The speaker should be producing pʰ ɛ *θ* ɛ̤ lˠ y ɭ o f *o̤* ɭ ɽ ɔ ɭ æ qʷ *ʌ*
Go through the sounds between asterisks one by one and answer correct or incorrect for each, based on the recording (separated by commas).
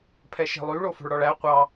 incorrect, correct, incorrect